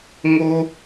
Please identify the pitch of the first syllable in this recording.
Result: high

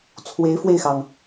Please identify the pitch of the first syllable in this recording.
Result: rising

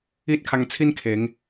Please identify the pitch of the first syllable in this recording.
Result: high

